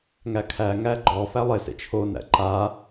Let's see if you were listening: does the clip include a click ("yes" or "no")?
yes